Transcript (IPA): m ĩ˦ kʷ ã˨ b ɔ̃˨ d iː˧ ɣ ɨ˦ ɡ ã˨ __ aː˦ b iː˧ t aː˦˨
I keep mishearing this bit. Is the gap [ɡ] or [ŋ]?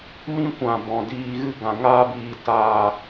ŋ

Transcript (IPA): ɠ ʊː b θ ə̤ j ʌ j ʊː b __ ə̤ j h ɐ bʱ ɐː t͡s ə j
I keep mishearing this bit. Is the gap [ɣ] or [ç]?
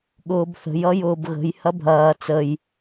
ɣ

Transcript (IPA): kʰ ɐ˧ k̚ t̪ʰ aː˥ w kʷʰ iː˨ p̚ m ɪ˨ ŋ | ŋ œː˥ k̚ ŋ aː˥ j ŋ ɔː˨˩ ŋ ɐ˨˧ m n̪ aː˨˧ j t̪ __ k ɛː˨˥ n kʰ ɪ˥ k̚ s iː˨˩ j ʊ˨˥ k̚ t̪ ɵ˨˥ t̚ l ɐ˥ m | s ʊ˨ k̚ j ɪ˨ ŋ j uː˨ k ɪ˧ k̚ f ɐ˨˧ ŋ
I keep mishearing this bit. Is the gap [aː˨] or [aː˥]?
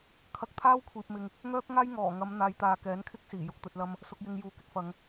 aː˨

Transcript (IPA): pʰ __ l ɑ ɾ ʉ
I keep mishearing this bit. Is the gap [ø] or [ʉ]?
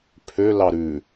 ø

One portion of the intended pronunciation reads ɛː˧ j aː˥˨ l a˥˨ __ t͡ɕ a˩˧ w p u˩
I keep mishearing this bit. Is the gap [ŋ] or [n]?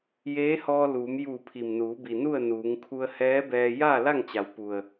ŋ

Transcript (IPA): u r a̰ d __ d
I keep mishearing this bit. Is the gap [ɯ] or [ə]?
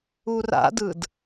ɯ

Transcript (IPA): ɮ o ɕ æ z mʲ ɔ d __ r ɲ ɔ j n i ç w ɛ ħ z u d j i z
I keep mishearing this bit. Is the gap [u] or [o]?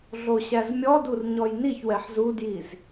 u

